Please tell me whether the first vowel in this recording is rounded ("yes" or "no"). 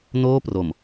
yes